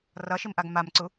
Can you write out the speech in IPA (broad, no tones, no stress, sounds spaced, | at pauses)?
r ʌ ʃ i m ʔ a ɡ m a m ǀ u